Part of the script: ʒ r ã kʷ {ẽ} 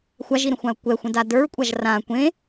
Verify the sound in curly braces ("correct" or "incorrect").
correct